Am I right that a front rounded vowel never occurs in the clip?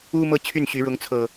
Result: no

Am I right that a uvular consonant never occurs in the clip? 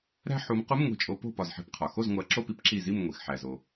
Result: no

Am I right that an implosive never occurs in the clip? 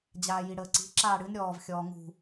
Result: yes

